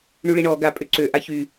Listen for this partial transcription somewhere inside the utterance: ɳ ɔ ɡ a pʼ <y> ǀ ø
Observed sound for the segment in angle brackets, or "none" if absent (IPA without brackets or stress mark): ø